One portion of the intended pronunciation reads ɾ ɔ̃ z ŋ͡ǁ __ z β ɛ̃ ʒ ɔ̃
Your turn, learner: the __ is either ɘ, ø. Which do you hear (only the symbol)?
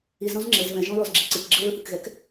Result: ɘ